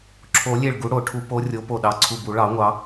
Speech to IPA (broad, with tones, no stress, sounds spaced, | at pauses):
ǁʰ o˨˩˦ lʲ e˧˩ ɭ ɡ u˨˦ ɽ o˨˩˦ ʈʰ u˨˦ p o˨˦ rʲ o˨˦ p o˧˩ ɗ ɑ˧˩ ǀʰ u˧˩ b u˨˩˦ ɭ ɑ˨˩˦ ŋʷ ɑ˨˦